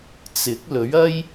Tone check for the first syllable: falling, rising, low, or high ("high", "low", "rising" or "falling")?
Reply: rising